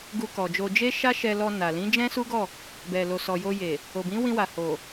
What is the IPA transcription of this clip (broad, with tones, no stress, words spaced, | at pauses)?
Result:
ɡu˧kɔ˨d͡ʒo˧ d͡ʒe˦ ʃa˦ʃɛ˧lɔ˧ na˨ lĩ˨˦d͡ʒɛ̃˦su˦ɡɔ˦˨ | bɛ˨lo˨ sɔ˨jo˧je˨ | o˨bĩ˨˦wĩ˧wa˨ ho˨